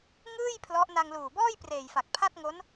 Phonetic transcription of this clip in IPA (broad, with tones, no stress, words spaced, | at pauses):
ŋɯː˥˩j pʰlɔ˦˥ʔ na˧ŋluː˨˩bɔː˥˩j preː˨˩jfa˨˩k̚pʰa˥˩t̚ŋo˦˥n